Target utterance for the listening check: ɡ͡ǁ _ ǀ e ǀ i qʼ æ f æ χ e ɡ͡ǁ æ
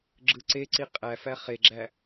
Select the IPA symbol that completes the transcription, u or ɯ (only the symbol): ɯ